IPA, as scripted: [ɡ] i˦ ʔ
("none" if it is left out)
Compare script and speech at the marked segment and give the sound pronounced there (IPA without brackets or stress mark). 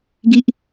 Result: ɡ